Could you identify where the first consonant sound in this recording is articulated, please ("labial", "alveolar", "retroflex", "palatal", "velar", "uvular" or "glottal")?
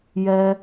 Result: palatal